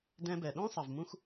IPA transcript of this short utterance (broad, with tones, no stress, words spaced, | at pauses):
dɛ̃˧bɛ˩ɗõ˥ sˤɐ˩v mũ˥x